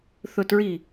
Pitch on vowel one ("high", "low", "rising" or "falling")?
falling